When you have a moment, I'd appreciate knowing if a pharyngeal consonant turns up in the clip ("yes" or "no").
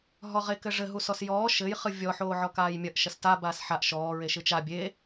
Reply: yes